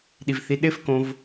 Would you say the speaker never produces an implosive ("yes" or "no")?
no